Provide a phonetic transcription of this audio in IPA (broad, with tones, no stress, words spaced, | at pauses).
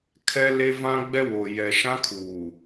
kʰɛ˦le˦vã˦ ɡ͡bɛ˦wo˨ jɛ˨ʃã˦kʰuː˨